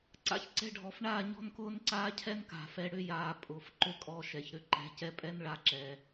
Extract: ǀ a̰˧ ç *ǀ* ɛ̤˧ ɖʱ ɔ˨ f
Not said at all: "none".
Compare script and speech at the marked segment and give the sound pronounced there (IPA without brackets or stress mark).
ǀ